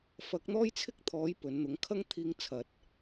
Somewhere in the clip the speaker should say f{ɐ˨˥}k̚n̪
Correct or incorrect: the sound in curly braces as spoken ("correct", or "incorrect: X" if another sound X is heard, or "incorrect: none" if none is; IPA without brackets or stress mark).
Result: correct